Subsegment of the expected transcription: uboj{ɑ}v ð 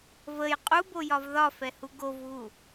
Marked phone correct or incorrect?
incorrect